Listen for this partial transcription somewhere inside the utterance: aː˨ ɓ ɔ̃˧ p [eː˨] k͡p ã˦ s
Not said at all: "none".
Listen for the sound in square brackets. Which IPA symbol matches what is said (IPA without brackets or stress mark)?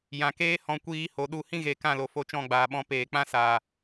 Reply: eː˨